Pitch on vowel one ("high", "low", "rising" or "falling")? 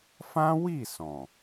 high